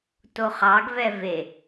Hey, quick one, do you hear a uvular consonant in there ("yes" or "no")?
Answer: yes